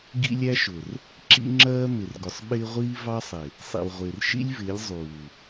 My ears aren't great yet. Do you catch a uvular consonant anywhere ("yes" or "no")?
yes